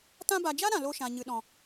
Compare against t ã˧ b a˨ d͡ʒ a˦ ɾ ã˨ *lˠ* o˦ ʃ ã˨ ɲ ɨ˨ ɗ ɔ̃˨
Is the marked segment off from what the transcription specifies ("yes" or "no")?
yes